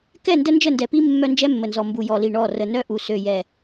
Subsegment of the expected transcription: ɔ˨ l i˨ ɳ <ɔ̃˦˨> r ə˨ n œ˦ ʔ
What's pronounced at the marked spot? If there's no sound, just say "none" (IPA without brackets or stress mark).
ɔ˦˨